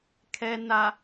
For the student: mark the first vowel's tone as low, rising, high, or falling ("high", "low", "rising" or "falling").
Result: low